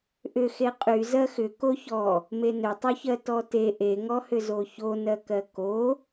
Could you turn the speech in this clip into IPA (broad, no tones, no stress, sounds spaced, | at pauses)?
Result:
ʔ ʏ x e qʼ y z ɜ x ʏ k o ç ɔ | m e n ʏ tˤ y ç ɜ t ɔ t e ʔ e ŋ ɔ h ʏ z o ç o n ɜ k ɜ k o